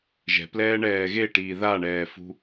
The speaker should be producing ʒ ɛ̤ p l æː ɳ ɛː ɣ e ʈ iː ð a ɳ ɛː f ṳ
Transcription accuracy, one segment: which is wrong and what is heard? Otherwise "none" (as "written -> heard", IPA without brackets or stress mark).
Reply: æː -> ɛː